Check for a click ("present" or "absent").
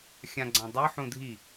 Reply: present